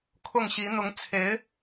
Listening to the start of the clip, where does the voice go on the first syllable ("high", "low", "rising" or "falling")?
falling